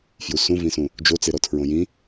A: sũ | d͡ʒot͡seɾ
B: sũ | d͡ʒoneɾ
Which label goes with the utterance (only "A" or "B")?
A